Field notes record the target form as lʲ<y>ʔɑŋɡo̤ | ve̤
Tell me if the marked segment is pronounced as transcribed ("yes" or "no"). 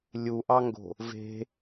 no